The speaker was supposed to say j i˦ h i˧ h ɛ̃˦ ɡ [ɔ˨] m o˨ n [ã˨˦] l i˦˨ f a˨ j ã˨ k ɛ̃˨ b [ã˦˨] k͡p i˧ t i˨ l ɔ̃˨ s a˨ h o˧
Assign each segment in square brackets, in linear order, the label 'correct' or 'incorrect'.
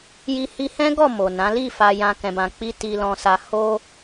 incorrect: ɔ˦˨, correct, incorrect: ã˨

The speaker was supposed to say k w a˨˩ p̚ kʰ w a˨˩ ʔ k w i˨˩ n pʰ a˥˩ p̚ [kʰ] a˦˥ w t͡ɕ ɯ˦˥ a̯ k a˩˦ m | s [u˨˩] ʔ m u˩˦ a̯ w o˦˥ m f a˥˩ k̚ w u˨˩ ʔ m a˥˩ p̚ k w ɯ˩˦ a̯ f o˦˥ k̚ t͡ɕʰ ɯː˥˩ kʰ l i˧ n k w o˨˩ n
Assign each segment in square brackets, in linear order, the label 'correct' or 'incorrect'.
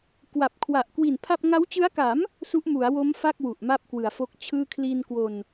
incorrect: ŋ, incorrect: u˦˥

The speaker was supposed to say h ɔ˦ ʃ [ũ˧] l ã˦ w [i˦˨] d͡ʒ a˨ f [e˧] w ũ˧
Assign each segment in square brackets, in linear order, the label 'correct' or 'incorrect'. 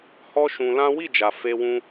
correct, correct, correct

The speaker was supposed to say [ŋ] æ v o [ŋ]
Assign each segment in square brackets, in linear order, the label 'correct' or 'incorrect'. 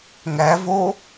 correct, incorrect: none

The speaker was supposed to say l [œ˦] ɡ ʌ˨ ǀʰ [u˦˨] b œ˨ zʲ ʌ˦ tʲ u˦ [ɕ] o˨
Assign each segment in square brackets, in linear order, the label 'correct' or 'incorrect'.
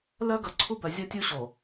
correct, incorrect: u˦, correct

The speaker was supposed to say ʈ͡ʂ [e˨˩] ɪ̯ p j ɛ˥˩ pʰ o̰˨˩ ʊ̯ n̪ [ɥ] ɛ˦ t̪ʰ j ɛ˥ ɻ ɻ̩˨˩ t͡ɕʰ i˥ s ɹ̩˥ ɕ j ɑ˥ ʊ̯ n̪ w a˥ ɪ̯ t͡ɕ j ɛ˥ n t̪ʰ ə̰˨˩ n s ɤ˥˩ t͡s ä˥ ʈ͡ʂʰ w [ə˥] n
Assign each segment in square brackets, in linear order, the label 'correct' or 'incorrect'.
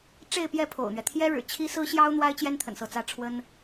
incorrect: e˥˧, correct, correct

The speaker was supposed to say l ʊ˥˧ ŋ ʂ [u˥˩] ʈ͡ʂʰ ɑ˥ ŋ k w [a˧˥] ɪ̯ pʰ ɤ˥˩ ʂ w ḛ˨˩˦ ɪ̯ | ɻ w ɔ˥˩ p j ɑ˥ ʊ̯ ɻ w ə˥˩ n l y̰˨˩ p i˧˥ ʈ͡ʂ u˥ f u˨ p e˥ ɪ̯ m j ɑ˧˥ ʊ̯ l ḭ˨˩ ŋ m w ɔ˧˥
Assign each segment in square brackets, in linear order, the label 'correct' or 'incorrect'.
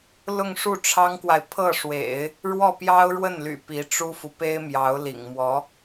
correct, incorrect: a˨

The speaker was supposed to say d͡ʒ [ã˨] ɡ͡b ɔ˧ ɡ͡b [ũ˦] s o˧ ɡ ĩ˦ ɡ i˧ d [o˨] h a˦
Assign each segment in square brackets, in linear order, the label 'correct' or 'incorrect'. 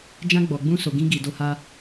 incorrect: ã˦, correct, incorrect: o˦

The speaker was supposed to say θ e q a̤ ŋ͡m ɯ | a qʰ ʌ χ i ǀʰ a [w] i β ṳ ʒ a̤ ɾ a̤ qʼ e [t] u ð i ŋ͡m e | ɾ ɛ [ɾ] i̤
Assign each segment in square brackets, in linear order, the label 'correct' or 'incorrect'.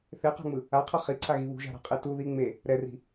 incorrect: ɣ, correct, incorrect: r

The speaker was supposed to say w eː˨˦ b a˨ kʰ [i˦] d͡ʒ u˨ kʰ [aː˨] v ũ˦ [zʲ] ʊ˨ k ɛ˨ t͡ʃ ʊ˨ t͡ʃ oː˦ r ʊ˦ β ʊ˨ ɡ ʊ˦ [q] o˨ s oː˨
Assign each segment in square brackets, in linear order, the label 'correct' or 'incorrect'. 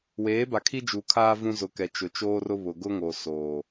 correct, incorrect: aː˦, incorrect: z, incorrect: ŋ

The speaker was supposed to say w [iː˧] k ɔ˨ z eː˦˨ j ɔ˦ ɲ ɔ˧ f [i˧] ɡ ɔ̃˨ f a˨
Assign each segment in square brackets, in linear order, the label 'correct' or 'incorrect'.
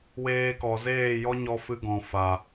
incorrect: eː˧, incorrect: ɨ˧

